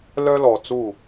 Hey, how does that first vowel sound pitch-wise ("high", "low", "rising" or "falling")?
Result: high